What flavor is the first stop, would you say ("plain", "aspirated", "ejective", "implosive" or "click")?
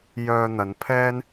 aspirated